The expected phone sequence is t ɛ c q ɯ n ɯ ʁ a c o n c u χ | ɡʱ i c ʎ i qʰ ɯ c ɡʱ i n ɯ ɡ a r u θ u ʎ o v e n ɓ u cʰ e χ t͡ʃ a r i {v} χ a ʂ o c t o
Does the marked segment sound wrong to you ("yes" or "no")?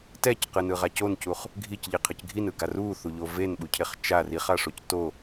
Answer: yes